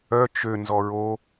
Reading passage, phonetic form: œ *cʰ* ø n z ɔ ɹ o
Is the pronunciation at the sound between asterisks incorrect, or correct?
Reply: incorrect